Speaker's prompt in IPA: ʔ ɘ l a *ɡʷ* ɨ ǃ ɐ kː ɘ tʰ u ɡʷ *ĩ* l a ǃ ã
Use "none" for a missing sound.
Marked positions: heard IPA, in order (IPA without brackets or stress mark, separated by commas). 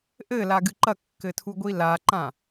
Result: ɡ, i